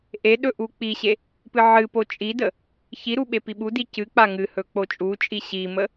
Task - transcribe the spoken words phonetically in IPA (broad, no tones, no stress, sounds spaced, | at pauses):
ʔ e ɗ ɵ ʔ u k͡p i ɕ e | p ɨ ʕ ɨ p o t͡ʃʼ i d ə | ç i ɾ u ɓ e p i ɓ u d i c ɨ k͡p a ŋ ɨ h ɵ k͡p o t͡ʃʼ u t͡ʃʼ i ɕ i m ə